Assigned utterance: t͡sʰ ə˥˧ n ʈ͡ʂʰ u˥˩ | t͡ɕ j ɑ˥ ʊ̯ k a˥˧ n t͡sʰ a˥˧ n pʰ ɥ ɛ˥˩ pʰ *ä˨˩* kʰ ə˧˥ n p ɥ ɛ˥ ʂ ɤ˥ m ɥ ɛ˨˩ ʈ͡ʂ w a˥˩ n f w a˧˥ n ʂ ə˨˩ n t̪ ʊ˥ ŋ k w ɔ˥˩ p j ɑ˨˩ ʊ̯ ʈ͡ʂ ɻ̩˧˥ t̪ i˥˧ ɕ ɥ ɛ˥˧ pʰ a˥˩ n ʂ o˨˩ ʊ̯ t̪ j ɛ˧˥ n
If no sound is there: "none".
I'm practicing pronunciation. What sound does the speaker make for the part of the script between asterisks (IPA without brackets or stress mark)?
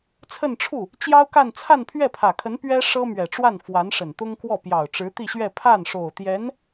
ä˨˩